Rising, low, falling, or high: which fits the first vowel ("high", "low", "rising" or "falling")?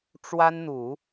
high